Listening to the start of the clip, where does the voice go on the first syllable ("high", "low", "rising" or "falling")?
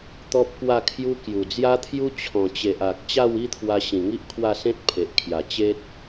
high